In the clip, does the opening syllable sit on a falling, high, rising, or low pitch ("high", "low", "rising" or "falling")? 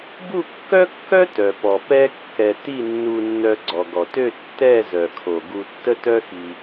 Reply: falling